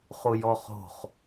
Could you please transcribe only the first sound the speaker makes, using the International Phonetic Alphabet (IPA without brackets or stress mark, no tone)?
χ